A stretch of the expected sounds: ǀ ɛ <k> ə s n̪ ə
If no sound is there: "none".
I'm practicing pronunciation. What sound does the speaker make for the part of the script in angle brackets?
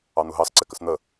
k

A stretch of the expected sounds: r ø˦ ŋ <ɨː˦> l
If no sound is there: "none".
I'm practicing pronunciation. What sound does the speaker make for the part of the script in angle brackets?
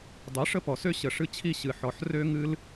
ɨ˦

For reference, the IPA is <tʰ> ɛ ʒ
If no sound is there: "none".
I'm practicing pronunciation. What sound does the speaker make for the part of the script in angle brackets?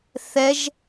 θ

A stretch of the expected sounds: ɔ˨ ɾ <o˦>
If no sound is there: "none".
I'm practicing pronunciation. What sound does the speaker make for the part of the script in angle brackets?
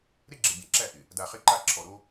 o˦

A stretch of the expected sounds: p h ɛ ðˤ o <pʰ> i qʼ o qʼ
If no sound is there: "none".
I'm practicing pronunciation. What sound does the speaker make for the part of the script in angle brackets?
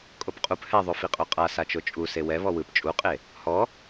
f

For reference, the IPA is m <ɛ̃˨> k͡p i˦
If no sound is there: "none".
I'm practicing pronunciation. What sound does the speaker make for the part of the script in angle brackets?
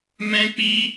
ɛ̃˦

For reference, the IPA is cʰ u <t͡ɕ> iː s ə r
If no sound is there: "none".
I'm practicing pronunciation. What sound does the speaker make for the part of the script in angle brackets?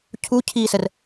cʰ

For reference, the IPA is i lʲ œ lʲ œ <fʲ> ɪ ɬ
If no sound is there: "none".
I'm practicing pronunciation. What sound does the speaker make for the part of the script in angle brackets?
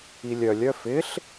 f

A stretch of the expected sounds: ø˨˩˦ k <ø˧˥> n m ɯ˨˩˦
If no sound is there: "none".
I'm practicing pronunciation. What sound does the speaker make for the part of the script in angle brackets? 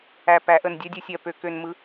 ø˨˩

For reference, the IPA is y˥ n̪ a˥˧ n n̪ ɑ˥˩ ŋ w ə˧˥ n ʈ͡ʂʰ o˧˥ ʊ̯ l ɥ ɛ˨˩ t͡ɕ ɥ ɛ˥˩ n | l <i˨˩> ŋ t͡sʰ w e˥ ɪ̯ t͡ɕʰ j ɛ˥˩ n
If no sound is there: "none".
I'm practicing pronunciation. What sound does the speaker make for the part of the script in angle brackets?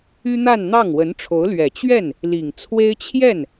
i˨˩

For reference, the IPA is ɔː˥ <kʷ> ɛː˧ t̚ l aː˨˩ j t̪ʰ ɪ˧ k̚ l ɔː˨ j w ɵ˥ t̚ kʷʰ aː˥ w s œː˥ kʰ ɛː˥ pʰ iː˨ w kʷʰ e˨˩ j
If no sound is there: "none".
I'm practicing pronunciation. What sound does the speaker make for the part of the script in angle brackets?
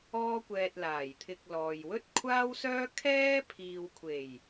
kʷ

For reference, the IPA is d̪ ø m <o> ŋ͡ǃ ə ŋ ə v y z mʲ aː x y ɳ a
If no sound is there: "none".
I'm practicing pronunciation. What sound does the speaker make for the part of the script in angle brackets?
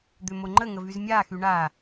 o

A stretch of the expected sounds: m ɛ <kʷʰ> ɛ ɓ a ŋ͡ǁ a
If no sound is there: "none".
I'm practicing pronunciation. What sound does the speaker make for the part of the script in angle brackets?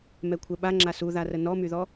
kʷʰ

